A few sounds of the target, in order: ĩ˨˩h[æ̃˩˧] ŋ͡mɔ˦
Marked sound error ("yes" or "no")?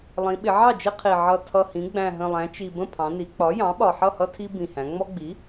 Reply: no